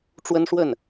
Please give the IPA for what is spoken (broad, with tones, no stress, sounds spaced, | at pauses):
ʈ͡ʂ w ə˥ n ʂ w ə˥˩ n